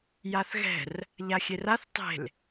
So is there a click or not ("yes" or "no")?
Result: no